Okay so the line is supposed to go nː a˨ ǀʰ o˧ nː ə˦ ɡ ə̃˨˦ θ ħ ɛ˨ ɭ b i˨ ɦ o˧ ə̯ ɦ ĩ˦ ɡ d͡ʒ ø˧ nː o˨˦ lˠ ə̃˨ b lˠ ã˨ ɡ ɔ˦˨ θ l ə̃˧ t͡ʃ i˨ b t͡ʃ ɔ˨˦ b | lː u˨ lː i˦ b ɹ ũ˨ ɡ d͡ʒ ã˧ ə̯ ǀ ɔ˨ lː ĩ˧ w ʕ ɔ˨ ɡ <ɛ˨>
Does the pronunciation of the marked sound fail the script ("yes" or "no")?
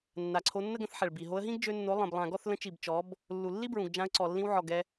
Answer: yes